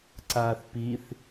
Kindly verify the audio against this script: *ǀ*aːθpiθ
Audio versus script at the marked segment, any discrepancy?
no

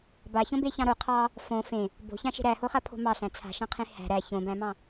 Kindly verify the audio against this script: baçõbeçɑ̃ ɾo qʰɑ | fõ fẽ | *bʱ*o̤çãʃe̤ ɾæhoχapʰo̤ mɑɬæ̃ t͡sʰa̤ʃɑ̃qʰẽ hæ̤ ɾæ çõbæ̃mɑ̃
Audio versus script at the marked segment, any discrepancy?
yes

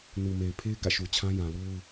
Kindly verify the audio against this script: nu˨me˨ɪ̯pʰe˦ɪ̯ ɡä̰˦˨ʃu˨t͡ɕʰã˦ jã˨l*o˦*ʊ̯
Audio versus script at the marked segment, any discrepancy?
no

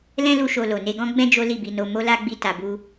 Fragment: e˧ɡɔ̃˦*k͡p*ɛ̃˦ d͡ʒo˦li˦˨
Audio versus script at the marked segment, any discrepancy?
yes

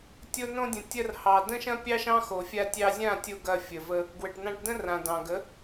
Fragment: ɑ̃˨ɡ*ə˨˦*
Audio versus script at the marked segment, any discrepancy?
no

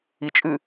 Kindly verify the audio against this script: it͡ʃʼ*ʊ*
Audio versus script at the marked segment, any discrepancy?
yes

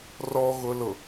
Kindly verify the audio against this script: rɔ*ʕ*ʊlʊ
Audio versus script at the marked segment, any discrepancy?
yes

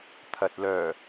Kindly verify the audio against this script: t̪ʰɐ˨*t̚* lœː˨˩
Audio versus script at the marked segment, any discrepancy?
no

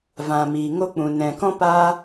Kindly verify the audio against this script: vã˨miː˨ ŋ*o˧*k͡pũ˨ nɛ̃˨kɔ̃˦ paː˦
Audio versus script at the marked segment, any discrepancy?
no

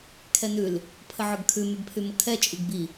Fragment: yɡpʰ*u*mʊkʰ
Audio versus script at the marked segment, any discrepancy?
yes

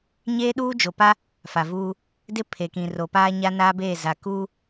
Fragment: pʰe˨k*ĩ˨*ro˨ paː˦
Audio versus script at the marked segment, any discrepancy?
no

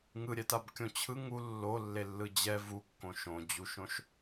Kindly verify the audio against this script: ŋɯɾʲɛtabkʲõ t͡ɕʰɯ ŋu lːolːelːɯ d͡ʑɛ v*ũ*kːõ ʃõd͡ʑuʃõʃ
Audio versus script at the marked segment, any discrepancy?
yes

